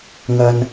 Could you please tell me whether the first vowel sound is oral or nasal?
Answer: oral